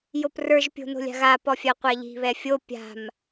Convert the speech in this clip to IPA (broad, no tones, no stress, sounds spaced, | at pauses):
j o p r ə˞ ʒ pʲ o̤ n o̤ lʲ a̤ ɣ a p ɔ fʲ a qʷ a ʎ i̤ β ɛ fʲ o pʲ a̤ m